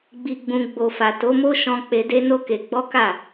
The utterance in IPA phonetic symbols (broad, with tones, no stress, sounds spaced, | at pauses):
ɡ͡b i˨ ɡ͡b ũ˨ ɡ͡b o˨ f a˨ t o˨˦ m o˦ ʃ ɔ̃˧ k͡p e˧ d e˦ n o˦ k e˧ ɡ͡b ɔ˦ k a˦˨